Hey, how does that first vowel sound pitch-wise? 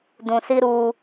low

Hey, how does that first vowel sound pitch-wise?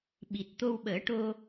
low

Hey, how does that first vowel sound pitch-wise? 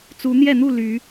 rising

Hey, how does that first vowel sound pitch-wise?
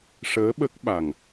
rising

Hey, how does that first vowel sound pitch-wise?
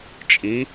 rising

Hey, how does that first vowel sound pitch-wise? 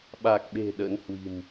low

